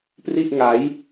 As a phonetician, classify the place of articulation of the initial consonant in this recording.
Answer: labial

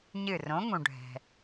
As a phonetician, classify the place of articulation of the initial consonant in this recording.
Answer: palatal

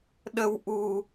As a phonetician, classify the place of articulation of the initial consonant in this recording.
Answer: alveolar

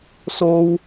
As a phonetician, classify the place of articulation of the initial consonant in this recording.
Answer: alveolar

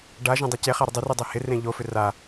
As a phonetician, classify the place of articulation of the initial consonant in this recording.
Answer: retroflex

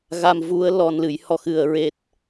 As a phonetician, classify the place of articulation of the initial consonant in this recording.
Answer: velar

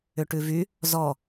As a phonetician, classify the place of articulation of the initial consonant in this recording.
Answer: retroflex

